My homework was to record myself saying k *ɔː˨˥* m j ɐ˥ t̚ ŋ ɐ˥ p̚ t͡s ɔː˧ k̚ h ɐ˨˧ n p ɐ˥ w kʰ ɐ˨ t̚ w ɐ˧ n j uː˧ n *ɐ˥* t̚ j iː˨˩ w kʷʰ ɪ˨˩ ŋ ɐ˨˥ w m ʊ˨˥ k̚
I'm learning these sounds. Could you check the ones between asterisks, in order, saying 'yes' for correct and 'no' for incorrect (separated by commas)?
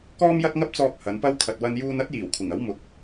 no, yes